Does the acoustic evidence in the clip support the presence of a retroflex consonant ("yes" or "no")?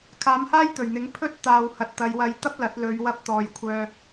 no